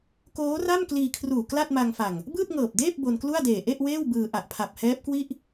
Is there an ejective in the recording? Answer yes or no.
no